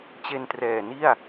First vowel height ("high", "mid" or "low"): mid